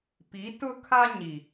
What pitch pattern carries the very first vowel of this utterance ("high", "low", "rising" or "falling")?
rising